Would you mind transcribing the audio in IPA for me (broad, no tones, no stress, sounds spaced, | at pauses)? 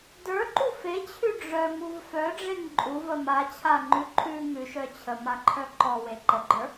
d ə˞ ǃ u f e t͡ɕʰ ʉ ɖ͡ʐ œ ŋ u v f œ ɖ͡ʐ e ŋ ǃʼ u v ə m a t͡ɕʰ a ŋ͡ǃ ʉ ǃʰ ʉ ŋ ʉ ʃ œ t͡ɕʰ ə m a ǃʰ œ ǃ ɔ w e ǃ ə ɡ͡ǃ ə˞